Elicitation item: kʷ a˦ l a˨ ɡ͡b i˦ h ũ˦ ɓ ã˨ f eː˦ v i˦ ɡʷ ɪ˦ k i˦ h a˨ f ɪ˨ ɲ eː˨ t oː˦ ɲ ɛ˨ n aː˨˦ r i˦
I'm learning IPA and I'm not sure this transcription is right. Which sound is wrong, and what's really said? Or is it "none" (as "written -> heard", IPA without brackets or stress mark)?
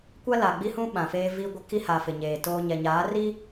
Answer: n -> ɲ